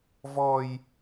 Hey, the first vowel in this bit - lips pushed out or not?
yes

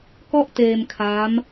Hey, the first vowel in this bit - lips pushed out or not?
yes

